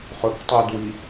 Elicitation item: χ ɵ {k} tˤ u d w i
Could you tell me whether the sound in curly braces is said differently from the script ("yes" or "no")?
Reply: no